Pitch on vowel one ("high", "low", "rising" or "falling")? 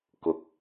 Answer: low